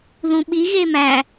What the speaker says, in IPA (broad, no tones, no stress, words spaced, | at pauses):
ðũɓi ɣemæ